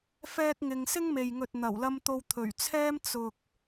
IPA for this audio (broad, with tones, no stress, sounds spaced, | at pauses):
f ɛː˥ k̚ ŋ ɪ˧ ŋ s ɪ˥ ŋ m e˨ j ŋ ɵ˨ t̚ n̪ ɐ˨˩ w l ɐ˧ m t̪ o˧ w t̪ʰ ɵ˨˩ ɥ t͡sʰ ɛː˥ m t͡s ʊ˨ k̚